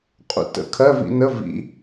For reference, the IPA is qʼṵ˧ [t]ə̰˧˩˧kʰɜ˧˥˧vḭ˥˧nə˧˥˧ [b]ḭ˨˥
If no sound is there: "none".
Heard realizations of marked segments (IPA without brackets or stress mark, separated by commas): t, v